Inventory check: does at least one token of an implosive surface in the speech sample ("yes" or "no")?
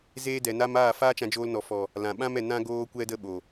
yes